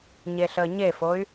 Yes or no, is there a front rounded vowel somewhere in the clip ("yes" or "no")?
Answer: yes